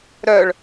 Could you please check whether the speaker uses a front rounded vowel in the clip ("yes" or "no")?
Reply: yes